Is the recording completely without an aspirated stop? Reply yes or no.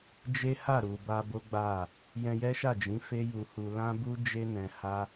yes